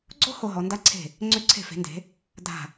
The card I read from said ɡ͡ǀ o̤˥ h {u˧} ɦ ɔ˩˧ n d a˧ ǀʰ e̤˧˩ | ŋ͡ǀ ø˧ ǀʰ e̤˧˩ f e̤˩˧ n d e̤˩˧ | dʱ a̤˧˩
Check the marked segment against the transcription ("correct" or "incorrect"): incorrect